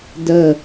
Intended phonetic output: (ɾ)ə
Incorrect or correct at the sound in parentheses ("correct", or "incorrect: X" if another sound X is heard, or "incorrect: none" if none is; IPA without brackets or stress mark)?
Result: incorrect: d